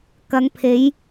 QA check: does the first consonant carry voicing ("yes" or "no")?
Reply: no